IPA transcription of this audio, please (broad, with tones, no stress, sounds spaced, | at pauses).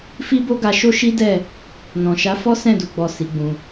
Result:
f i˦ b o˦ ɡ a˧ ʃ o˦ ʃ i˦ d ɛ˦˨ | n ɔ̃˨ ʃ a˨˦ f ɔ˦ s ɛ̃˦˨ d u˨ ɡ͡b ɔ˨ s i˨˦ ɡ͡b ũ˧